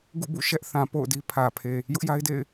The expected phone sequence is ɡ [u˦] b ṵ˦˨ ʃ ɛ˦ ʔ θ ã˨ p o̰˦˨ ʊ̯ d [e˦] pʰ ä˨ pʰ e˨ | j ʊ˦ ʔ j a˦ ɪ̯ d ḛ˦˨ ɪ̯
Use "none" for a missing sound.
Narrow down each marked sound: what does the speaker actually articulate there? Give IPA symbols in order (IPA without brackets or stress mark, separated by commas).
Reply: ṵ˦˨, i˦